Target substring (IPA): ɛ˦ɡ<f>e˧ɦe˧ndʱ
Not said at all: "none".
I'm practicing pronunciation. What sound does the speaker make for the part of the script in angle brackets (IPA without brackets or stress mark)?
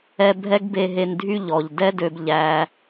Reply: b